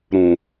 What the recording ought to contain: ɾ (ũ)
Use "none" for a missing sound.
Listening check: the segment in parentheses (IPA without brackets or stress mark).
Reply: ũ